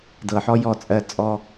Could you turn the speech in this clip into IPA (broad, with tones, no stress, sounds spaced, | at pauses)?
d ɤ˨ ħ ɔ˦ j ɔ˦˨ t͡sʼ ɜ˧ t͡sʼ ɔ˦